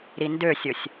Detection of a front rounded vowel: present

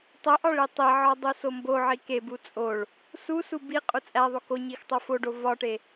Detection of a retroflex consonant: present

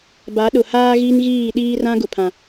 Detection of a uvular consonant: absent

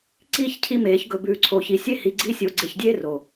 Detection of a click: present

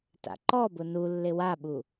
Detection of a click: present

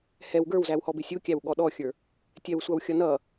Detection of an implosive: present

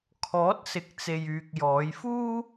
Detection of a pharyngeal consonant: absent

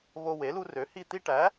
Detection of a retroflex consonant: present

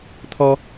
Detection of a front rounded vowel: absent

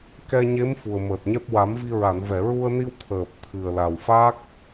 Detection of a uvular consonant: absent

